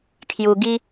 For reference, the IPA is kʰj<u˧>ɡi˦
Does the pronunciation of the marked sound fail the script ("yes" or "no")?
no